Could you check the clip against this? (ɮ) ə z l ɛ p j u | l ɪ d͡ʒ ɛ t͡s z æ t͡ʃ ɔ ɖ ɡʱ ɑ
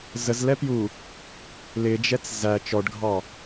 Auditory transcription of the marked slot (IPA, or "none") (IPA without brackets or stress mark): z